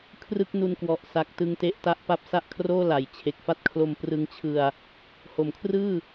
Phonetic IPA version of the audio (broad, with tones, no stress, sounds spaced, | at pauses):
kʰ r ɯ˥˩ k̚ n u˧ n k w ɔ˨˩ ʔ s a˨˩ k̚ t ɯ˧ ŋ t e˦˥ ʔ t a˦˥ ʔ p a˦˥ p̚ s a˥˩ ʔ kʰ r oː˥˩ l a˩˦ j t͡ɕʰ e˨˩ k̚ f a˥˩ t̚ kʰ l o˧ m p r ɯ˧ ŋ t͡ɕʰ ɯ˧ a̯ | h o˩˦ m kʰ r ɯː˥˩